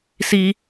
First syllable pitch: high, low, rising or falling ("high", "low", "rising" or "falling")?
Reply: high